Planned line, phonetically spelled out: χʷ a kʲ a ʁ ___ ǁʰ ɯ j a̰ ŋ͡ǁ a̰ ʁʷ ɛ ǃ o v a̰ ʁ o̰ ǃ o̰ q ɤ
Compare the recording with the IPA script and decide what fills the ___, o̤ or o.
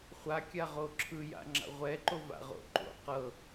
o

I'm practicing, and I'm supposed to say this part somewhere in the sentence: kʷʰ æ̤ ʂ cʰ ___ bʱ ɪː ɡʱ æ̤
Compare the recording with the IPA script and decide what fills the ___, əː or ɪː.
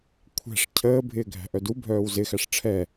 əː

